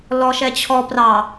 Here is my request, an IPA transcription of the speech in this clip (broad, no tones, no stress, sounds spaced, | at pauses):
l ɔ ʃ ɛ t͡ɕʰ ɔ p r ɑ